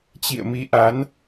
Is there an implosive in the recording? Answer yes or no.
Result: no